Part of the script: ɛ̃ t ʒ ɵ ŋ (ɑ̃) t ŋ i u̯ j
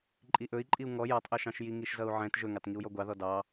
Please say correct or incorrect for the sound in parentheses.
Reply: incorrect